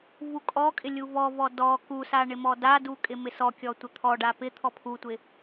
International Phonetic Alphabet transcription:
vukʼɔkʼɪ lʲuvɔvɔ dɔ kusa ɳɪmɔdadu kʼɪmɪsɔkʲɔ tʷɪt̪ʰɔɖa pɪ t̪ʰɔpʰutʷɪ

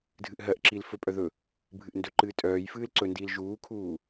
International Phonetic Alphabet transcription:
dʱɨʔɦɜʔǁil fɵpʼœ ðɵ | bʱɨʔndɵǃɨː tʼœːj fɨːlǀɵndiːl ʒuːkʰuː

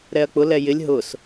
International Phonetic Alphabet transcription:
ɾɛɐ̯k͡pʊlɛ jɪlʲ ɦʊs

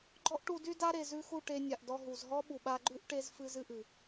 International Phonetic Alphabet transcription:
ɡ͡ǃɔ˦ʔʈu˧dy˦da˦ ɾe˨zʉ˧xu˦˨ ʈe˧nʲa˨ʔdɔ˧ ɦu˨z ɦɔ˦ɓu˨ɓa˧ɡ͡ǃʉ˦ʔ ʈe˦z fɨ˦zɨ˦ʔɨ˨

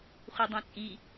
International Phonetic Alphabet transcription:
χʷidˤẽt͡sʼi

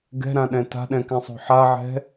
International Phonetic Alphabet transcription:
ɡɛ̤ɾãɗɛ̃ ta̤ɗɛ̃kɛ̃sˤo̤ ħaʕɛ̤

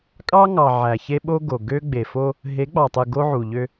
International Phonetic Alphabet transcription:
kʼɑ˦ŋɑ˨ ʕæ˨çe˦ ɓo˦ɡo˨ ɡø˦ ɡ͡be˨fo˦ | ɦe˨˦ɡ͡bɑ˨tˤɯ˨ ɡo˦ʕu˨ʎø˦

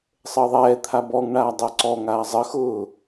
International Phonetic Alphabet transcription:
sˤəːðˤɛːt̪ʰa bɔŋɳaː dˤəːǀɔŋaː zˤəxʊː

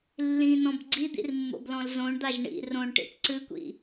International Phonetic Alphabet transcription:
lːĩnɔ̃b ɡ͡ǀid̪ḭrmːo̰blɔ̃l zõɳd̪aʒ ɳḭ rõɳʈḭʈ ǀɨkʷḭ

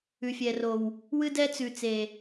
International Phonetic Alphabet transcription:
ʉ˨fʲɛ˨ro˨w | wɨ˦dɛ˦ t͡sʉ˨ t͡se˨

